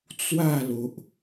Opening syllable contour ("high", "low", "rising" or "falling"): falling